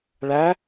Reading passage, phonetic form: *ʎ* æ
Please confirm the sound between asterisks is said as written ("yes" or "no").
no